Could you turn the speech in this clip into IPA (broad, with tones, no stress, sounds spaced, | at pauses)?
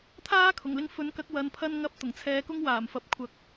t̪ʰ aː˥ kʰ ʊ˨˩ ŋ l ɪ˧ ŋ f ɵ˨˥ n k ɐ˨˥ k̚ w ɐ˧ n pʰ ɐ˥ n ŋ ɐ˥ p̚ t̪ ʊ˨˩ ŋ t͡sʰ ɛː˧ k ʊ˥ ŋ w aː˨˩ m f ɐ˨ p̚ kʷʰ ɐ˧ k̚